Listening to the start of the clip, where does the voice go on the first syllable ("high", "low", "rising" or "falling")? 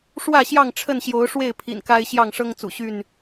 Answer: falling